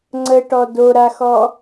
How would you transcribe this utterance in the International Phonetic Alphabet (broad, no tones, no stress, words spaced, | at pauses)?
ŋ͡ǀəʈɔ doɾaxɔ